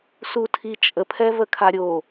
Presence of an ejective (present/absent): present